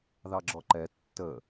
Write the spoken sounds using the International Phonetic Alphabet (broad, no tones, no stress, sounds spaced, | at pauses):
ð ɑ ɡ͡ǁ ɔ ǃ ɛ tː ə